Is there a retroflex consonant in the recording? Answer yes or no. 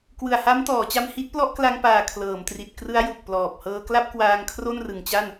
no